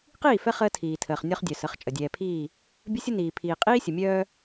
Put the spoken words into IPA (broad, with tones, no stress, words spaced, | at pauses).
qiː˦˨fɛ˦ χəː˦tʰiː˨tʰəː˨χ nʲɔ˦χdʲœ˨sə˨˦χ t͡ʃʼə˨dʲɛː˨pʰiː˦˨ | bʲə˦sʲə˦niː˨ pʰiː˨qʼiː˦sʲə˨mʲœː˦